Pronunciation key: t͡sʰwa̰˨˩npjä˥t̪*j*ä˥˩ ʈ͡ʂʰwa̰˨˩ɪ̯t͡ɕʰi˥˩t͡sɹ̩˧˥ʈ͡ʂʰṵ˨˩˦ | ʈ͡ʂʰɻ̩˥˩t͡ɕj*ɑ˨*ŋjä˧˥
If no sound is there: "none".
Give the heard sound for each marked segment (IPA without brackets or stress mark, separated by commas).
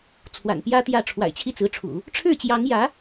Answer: j, ɑ˧˥